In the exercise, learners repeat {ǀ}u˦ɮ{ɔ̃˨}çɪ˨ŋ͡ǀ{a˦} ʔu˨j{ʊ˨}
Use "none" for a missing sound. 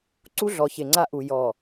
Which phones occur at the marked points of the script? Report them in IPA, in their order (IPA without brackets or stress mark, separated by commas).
ǀ, ɔ˨, a˦, ɔ˨